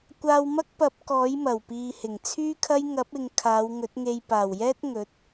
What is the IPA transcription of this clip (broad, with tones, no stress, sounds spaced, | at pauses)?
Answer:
kʷ aː˧ w m ɐ˥ k̚ p ɐ˨˥ p̚ k ɔː˨˥ j m ɐ˨˩ w p iː˨ h ɪ˨˩ ŋ t͡sʰ yː˥ kʰ ɐ˥ j ŋ ɐ˨˥ p̚ ɪ˨ ŋ kʰ aː˨˧ w ŋ ɵ˨˥ t̚ ŋ e˧ j p aː˨˩ w j ɛː˥ t̚ ŋ ɵ˨˥ t̚